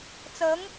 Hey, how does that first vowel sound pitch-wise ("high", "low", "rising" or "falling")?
rising